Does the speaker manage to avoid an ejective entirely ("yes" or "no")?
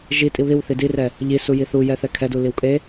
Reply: no